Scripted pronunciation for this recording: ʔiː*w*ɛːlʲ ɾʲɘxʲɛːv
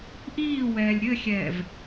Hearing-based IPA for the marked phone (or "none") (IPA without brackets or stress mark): w